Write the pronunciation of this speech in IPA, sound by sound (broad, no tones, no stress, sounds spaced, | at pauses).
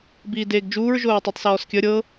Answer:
b iː d eː ɡ d͡ʒ uː ɹ ʒ o ɹ tˤ u tˤ s ɔː s kʲ ə ɾʲ ɤ